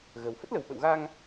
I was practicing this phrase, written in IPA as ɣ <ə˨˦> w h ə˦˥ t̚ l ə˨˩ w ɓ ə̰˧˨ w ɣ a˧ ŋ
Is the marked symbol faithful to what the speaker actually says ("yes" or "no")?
no